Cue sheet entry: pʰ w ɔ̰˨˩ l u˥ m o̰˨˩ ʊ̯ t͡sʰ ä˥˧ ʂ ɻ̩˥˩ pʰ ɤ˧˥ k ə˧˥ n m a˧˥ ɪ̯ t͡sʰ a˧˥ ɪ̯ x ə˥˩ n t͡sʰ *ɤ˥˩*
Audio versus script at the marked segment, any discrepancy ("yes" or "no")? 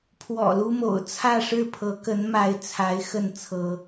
yes